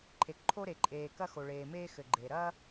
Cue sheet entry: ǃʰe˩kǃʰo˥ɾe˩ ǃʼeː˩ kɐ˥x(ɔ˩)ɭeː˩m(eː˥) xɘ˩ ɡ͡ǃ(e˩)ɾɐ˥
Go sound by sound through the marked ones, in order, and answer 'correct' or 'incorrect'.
incorrect, correct, correct

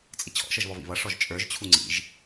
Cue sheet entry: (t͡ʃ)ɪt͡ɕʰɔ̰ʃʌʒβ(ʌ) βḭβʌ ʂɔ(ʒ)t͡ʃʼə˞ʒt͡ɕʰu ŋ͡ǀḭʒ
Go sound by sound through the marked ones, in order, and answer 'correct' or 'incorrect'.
incorrect, incorrect, correct

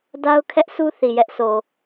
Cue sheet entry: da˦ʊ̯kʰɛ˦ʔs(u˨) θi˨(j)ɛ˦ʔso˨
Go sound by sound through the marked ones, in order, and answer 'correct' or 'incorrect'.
incorrect, correct

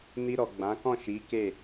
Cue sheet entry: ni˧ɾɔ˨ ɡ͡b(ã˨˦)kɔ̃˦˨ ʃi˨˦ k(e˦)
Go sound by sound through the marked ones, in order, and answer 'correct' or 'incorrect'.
correct, incorrect

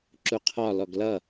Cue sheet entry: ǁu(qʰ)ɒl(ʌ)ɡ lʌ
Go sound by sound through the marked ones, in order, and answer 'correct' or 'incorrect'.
correct, incorrect

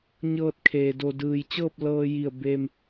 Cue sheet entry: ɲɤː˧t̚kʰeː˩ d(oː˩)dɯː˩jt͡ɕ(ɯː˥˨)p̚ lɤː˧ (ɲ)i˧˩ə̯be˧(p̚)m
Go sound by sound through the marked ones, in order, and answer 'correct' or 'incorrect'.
incorrect, incorrect, incorrect, incorrect

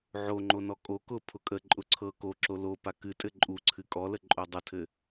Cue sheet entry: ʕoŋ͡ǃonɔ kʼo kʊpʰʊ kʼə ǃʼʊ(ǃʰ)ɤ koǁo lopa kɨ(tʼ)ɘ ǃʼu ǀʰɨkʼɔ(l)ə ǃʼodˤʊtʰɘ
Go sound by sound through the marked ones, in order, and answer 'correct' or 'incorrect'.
incorrect, correct, correct

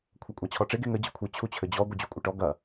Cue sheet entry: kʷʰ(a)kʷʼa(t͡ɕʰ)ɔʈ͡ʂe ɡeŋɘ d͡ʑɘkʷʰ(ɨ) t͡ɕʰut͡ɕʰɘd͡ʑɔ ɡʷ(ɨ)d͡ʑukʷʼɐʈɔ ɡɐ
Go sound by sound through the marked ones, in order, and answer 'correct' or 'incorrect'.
incorrect, correct, correct, correct

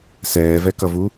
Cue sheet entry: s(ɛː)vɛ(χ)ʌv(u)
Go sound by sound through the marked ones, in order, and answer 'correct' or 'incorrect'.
correct, incorrect, correct

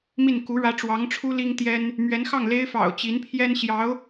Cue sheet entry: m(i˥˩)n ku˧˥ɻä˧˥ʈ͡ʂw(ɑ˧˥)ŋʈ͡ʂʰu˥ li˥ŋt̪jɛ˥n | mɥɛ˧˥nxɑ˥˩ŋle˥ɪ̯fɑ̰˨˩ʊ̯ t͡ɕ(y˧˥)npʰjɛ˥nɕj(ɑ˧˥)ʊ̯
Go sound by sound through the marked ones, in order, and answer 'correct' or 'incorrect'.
correct, correct, incorrect, correct

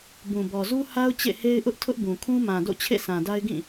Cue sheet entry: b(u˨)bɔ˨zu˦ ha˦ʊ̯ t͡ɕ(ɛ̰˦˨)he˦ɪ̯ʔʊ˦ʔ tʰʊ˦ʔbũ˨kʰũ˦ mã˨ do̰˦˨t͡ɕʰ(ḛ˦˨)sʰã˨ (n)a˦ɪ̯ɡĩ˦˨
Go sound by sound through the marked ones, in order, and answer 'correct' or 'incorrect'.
incorrect, incorrect, correct, incorrect

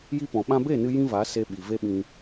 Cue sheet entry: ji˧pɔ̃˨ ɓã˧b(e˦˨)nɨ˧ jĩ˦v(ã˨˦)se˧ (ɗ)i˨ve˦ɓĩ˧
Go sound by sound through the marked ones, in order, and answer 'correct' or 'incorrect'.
correct, incorrect, incorrect

